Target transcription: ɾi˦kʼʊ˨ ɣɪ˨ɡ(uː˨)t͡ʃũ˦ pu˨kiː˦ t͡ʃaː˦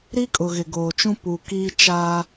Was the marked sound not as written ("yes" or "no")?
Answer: yes